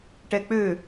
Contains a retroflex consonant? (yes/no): yes